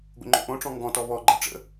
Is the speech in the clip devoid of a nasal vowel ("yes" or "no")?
no